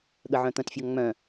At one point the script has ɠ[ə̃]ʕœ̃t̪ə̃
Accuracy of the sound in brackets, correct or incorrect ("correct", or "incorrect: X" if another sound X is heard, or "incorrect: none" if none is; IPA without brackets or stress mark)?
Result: incorrect: ə